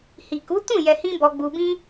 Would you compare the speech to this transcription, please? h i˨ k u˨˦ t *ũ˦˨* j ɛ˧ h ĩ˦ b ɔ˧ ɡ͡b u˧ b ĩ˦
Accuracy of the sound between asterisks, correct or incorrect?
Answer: correct